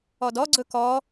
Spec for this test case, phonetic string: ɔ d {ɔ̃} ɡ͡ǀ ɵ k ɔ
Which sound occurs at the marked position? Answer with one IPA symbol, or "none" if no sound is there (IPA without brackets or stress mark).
ɔ